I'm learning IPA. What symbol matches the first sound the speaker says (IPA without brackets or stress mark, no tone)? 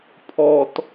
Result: pʰ